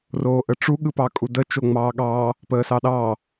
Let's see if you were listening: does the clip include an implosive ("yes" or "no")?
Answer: yes